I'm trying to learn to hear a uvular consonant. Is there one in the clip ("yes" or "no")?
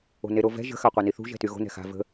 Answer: yes